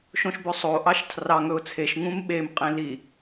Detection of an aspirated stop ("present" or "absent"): present